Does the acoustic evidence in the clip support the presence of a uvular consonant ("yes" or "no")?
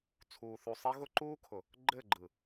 no